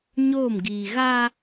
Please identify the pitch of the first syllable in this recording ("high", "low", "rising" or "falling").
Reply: falling